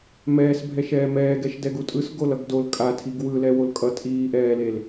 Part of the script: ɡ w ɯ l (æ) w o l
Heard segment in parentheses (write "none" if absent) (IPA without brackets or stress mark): ɛ